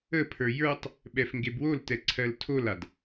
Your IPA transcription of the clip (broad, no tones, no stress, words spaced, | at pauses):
əpʰə˞ jə˞tˤ | ɓɛfŋɡebwoltɛ ǀʰɜltʰolad